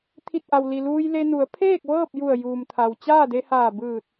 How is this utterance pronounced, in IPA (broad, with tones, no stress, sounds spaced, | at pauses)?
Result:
t̪ʰ i˧˩ t̚ ʔ a˩ w l i˩ l uː˧ j l e˧ n u˩˧ ə̯ pʰ eː˥˨ k̚ ʋ ɤː˥˨ p̚ j u˧˩ ə̯ j uː˩ m t̪ʰ a˩ w t͡ɕ aː˥˨ d e˧ h aː˧˩ b ɯː˧˩ t̚